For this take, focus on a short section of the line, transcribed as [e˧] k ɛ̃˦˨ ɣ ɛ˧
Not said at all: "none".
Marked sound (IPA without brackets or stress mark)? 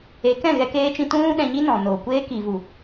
e˨˦